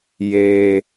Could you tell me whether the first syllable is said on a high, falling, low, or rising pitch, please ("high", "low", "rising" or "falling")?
low